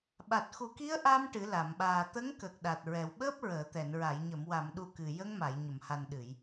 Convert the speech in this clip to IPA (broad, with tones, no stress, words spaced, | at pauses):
ɓa˨˩t̚xu˨˩˦ki˧˥ə̯ʔa˧m ʈɨ˨˩˦la˨˩˨mɓaː˨˩ t̪ə˧˥ŋkə˨˩k̚ɗa˨˩t̚ ɹɛ˨˩w ɓəː˦˥p̚ɹəː˨˩˨t̪ɛ˨˩˨nɹa˨˩˨j ɲə˨˩˨m wa˨˩˨mɗu˨˩ kɨ˨˩ jə˧ŋma˨˩˨j ɲə˨˩˨mha˨˩n ɗɨ˨˩˨j